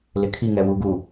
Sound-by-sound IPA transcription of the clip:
l ɪ kʰ i ŋ ɛ w u ɡ u

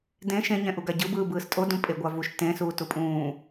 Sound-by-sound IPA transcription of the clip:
d ẽ ʃ ẽ ɲ ɛ̃ ʔ u ɡ a ɟ ɯ b ɯː b ɯː s tʼ o d ũ pʼ e ɡʷ a v u ʃ t ẽ s uː t u pʼ ũː

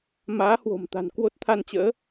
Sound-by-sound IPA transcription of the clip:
m aː˨˦ h w o̤˨˩ m t̪ a̤˨˩ n k w o˦˥ t̚ t̪ʰ a˧ n t͡ɕ ə̰ː˧˥

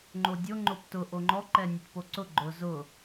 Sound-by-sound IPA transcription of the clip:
ŋ͡ǃ o dʲ o ŋ͡ǃ o p t ʊ ʔ o ŋ͡ǃ ɔ ǃ ɛ nʲ ʊ t p o ǀ ʊ ɡ͡ǃ ʊ z ʊ

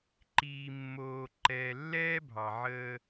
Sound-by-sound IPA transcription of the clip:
ǃ iː˨ mː oː˨ ǃ ɛː˨ lː ɛː˥ bʱ ɑ˩ ʕ əː˦

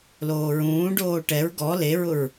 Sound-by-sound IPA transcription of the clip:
l oː ɹ ũː ɖ oː ʈ ɛ ɹ ɡ ɔ l e ɹ ʊ ɹ

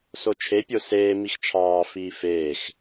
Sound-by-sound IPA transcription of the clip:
s o t͡ʃʰ e pʲ o s eː m i x t͡ʃʰ ɑː f iː f eː x

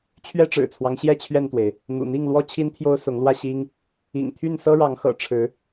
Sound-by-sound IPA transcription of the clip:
t͡ɕʰ ɥ ɛ˦ ʈ͡ʂ ɻ̩˨˩ t͡sʰ w ɑ˦ ŋ ɕ j ɛ˥˨ t͡ɕʰ ɥ ɛ˥˨ n t̪ w e˩ ɪ̯ | n̪ ṵ˨˩ n̪ i˥˨ ŋ l w ɔ˦ t͡ɕʰ i˦ n t̪ʰ j o˦ ʊ̯ s ʊ˨˦ ŋ l w ä˥˨ ɕ i˦ ŋ | ḭ˨˩ ŋ t̪ʰ y˥˨ n s ɤ˦ ɻ ɑ˨˦ ŋ x ɤ̰˨˩ ʈ͡ʂʰ ɻ̩˨˦

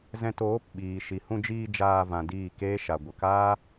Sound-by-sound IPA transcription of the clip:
z ɛ̃˧ t oː˨˦ p ɓ iː˨ ʃ i˨ h ũ˧ d͡ʒ iː˧ d͡ʒ aː˧ v ã˨ d iː˦˨ k eː˦ ʃ a˨ ɡʷ ə˨ k aː˦

